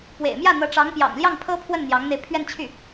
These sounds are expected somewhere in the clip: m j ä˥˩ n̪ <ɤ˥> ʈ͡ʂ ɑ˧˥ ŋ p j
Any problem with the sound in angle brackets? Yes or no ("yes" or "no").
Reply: yes